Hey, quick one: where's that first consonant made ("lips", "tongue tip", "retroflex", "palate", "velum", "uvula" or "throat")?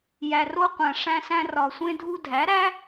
palate